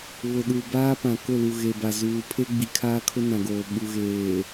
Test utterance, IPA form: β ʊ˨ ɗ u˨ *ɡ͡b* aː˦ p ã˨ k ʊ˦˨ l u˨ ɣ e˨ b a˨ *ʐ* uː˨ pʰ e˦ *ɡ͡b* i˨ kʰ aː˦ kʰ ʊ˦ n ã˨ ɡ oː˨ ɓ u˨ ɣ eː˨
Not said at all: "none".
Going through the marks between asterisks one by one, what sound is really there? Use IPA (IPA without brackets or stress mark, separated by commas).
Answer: b, z, ɡ͡b